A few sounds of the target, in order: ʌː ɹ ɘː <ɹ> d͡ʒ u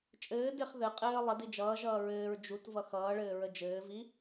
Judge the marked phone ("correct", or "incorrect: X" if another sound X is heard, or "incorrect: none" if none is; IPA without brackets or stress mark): correct